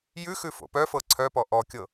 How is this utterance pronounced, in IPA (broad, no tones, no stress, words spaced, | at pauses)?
jʉ xʉfo̰pœfɤ ǀʰœpɔ ʔɔkʲɤ